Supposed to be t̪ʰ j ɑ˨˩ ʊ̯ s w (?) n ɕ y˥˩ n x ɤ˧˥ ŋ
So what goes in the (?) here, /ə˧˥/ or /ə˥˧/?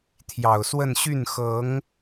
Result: ə˥˧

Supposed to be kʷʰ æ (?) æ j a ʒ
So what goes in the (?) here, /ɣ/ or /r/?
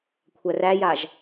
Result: r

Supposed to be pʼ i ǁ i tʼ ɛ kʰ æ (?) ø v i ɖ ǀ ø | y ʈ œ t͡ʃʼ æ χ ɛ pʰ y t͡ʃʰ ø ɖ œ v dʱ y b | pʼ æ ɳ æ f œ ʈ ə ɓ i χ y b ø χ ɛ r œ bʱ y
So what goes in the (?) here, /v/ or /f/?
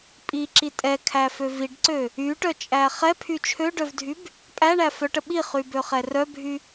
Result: f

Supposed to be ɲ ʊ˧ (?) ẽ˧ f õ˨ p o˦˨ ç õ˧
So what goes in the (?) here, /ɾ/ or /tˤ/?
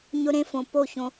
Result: ɾ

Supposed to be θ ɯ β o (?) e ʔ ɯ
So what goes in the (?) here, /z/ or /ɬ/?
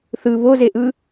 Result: z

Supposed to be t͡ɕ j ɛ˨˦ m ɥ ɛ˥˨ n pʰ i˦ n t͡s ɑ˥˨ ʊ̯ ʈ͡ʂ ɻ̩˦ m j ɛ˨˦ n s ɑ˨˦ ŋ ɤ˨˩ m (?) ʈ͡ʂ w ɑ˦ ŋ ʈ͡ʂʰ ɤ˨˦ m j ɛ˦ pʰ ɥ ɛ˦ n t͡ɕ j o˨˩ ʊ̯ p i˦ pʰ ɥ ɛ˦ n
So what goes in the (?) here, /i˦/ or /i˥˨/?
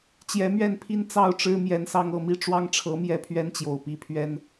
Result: i˥˨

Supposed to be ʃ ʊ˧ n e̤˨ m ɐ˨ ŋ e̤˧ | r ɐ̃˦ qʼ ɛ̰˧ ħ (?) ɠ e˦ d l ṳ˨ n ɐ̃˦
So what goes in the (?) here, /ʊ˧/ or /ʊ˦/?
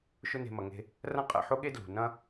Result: ʊ˦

